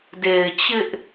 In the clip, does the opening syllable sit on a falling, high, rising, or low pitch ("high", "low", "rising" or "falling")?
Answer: low